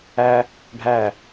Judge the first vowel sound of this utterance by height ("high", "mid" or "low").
low